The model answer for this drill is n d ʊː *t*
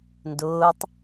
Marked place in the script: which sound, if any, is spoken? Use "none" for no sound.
tˤ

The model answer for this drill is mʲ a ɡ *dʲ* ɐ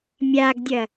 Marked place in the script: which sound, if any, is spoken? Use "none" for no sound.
dʲ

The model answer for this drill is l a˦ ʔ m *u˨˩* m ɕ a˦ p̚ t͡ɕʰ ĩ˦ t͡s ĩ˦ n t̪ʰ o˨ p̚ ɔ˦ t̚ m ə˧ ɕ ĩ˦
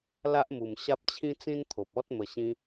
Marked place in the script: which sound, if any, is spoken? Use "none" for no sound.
u˨˩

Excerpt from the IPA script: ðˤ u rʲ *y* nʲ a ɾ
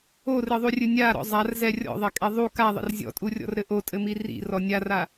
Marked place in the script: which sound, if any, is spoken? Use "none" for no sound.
ɨ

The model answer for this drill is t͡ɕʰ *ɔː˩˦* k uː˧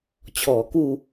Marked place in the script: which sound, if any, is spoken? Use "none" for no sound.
ɔː˩˦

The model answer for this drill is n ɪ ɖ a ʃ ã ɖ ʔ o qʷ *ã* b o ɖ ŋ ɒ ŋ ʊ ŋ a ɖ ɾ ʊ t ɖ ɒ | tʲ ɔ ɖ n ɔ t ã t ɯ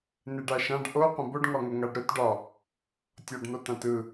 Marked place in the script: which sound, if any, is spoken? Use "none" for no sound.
ə̃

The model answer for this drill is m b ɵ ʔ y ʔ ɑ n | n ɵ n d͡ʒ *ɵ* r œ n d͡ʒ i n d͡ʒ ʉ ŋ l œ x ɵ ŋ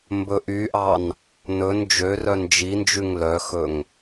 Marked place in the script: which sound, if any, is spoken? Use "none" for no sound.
ø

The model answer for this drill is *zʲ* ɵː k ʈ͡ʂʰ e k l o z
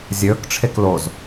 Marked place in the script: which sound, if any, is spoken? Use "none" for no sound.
zʲ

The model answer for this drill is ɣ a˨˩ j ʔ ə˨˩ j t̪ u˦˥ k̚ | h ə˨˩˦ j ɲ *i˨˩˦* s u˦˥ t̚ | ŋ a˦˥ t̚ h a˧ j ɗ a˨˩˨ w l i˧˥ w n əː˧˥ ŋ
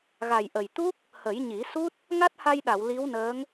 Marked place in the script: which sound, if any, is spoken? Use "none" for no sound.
i˨˩˦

